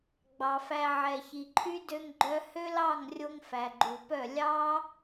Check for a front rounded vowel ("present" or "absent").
present